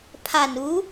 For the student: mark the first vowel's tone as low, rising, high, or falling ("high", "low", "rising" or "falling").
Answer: low